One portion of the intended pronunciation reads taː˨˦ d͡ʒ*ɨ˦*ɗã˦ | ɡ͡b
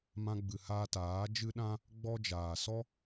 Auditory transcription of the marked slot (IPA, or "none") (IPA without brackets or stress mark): ɨ˦